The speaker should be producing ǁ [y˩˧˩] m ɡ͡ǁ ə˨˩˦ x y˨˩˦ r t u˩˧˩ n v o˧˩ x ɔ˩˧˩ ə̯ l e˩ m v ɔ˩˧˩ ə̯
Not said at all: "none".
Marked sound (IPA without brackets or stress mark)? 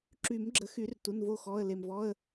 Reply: y˨˩˦